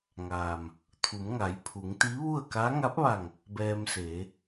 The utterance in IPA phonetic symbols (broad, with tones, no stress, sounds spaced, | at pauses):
ŋ aː˩ m | t̪ʰ u˩˧ m ŋ a˩˧ j pʰ u˩˧ ŋ t̪ i˧˥ ʋ u˥˨ ə̯ k a˧˥ ŋ a˧˥ p̚ ʋ a˧˩ ŋ | b ɛː˧ m s eː˩˧